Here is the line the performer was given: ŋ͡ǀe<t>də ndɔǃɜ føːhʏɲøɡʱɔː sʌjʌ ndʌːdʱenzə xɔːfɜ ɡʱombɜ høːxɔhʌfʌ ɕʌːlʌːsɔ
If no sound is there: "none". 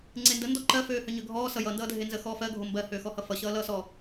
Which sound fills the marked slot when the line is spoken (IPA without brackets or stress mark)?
n